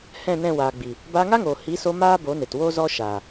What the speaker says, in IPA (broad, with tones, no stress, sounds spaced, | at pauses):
h ɛ̃˦˨ n ɛ̃˦˨ w aː˨ ɡ͡b i˨ | b aː˧ ŋ a˦ ŋ oː˨ h i˨˦ s o˧ m aː˦ b o˨˦ n e˨ t w o˦ z ɔ˦ ʃ a˨